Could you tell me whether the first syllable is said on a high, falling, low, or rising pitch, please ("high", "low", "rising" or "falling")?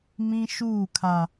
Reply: high